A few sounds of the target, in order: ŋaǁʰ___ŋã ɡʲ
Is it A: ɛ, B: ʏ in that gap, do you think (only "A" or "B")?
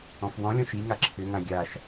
B